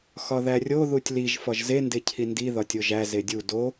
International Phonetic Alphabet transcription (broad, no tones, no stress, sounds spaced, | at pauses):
x ɒ ð æ rʲ o ð u tʲ l i ʒ f ɒ ʒ z e n d e cʰ i n d i ð ɒ tʲ o ʒ æ z e dʲ u d o